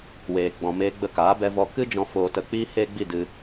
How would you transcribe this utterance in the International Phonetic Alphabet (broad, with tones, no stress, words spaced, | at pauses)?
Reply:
weː˨ ɡ͡bɔ̃˨meː˧ɡ͡bə˧ kaː˨˦bɛ˧vɔ˧ kɨ˦d͡ʒɔ̃˧ foː˧tə˧ k͡piː˦ heː˦ɡ͡bi˦˨ dɨ˧